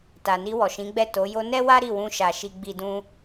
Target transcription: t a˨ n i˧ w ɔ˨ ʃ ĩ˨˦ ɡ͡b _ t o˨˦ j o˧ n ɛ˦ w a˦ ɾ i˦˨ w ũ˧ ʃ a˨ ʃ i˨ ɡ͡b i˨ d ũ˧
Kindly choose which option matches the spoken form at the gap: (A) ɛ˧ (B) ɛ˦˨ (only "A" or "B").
B